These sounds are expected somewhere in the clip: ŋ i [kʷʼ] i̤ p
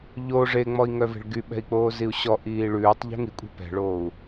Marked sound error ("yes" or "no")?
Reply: no